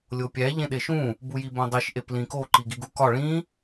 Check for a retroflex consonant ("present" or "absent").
present